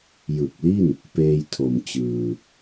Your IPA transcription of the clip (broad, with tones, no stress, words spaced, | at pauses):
jɯ˨˩k̚li˥˩n | peː˧jtʰo˨˩m t͡ɕɯː˧